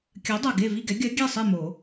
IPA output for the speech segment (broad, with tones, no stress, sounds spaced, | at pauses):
kʲ ɜ˨˥ dˤ ʌ˨˩ ɡ e˥˨ v i˥˨ ɡ ɛ˨˥ ɡʲ œ˨˥ ɡʲ ɛ˥˨ sˤ i˥˨ m o˨˩˦